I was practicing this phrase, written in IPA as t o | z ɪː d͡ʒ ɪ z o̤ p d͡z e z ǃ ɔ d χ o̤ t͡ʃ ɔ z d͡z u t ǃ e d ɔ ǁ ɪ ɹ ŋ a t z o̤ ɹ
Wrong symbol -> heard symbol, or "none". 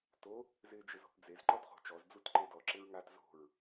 none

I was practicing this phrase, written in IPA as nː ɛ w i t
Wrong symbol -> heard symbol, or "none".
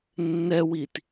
none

